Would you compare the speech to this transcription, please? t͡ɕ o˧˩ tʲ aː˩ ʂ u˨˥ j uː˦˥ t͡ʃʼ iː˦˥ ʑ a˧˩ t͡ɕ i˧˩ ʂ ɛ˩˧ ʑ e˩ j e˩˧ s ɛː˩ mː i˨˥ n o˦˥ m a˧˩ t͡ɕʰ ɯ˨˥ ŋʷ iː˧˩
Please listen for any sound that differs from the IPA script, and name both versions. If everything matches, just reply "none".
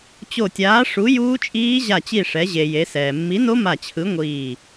aː˩ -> aː˨˥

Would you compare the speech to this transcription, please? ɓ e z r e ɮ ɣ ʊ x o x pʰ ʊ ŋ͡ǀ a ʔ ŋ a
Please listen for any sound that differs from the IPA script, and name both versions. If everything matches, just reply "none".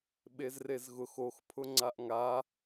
ɮ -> z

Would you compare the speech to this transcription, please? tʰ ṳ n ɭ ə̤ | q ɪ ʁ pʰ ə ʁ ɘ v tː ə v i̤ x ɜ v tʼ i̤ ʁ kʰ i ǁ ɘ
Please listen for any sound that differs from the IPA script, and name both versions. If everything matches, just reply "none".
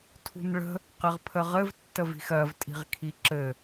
none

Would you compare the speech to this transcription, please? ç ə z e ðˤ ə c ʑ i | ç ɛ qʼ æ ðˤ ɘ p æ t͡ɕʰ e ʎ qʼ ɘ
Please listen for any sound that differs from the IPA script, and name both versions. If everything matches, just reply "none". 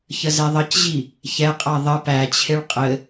ʎ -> ɭ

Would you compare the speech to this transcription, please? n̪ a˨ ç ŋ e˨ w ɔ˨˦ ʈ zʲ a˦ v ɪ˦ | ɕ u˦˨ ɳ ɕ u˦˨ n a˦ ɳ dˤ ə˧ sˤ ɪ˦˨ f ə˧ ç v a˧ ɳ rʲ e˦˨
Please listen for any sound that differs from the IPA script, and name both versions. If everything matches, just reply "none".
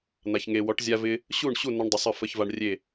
none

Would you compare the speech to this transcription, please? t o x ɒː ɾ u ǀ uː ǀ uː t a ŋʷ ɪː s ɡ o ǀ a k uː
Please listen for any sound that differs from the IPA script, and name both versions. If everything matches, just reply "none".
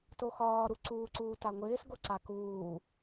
none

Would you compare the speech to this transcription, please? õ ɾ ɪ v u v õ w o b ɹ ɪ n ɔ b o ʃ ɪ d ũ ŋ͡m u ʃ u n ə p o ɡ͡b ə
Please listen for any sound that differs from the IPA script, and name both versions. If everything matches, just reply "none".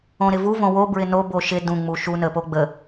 ɔ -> o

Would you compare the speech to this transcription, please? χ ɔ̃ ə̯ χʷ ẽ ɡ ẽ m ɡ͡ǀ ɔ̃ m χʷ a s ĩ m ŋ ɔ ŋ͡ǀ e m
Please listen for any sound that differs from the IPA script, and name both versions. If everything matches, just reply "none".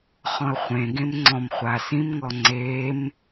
ɡ͡ǀ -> ŋ͡ǀ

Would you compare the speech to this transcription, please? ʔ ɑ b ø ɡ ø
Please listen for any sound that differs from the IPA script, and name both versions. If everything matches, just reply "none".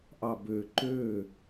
ɡ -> ǃ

